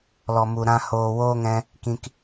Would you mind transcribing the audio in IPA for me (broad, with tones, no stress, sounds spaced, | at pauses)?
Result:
l ɔ˨ m u˨ ɾ ã˧ h oː˨ w oː˦ ŋ ɛ̃˧ | k ĩ˨ k